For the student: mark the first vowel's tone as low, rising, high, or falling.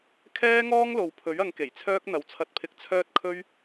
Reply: high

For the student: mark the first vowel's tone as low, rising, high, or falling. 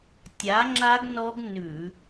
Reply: rising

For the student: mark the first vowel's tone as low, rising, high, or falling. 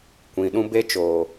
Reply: low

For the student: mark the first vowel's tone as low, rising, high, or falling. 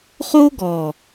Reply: high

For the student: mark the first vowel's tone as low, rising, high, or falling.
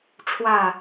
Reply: falling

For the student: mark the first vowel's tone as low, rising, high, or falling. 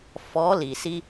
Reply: rising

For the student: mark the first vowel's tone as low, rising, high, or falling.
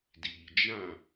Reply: low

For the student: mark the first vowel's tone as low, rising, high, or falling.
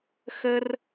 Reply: high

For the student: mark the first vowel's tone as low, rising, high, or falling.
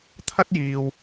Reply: high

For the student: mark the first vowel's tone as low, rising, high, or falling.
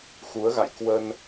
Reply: rising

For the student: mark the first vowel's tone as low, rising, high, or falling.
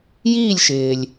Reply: falling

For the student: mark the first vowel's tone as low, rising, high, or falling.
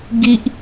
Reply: high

